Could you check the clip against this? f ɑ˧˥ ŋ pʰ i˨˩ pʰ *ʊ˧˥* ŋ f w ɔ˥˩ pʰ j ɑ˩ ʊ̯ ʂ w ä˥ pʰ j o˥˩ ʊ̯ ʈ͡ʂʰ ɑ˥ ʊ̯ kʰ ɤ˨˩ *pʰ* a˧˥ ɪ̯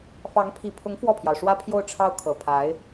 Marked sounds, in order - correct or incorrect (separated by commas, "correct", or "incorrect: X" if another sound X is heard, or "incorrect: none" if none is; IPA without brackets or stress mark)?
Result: correct, correct